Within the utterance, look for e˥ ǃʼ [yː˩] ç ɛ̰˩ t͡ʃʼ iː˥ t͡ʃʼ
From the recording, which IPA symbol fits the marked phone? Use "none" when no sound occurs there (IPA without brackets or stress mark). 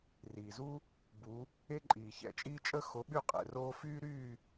iː˩